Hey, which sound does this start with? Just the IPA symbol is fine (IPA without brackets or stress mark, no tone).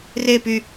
r